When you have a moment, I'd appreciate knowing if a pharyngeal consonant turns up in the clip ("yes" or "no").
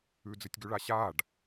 no